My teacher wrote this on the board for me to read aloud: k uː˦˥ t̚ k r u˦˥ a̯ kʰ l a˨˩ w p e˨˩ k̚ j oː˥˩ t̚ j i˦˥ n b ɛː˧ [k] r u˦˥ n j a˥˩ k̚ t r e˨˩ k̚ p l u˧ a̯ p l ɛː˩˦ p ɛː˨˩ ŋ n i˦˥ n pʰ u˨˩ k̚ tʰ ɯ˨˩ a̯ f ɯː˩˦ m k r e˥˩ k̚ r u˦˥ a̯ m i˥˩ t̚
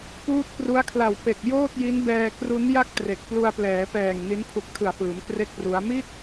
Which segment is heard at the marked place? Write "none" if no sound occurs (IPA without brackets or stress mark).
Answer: k